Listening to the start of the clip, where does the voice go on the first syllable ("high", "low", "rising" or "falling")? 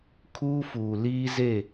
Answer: high